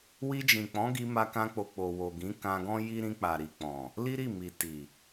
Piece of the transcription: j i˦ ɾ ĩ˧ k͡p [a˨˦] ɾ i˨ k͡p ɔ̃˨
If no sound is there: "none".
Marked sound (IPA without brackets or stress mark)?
a˨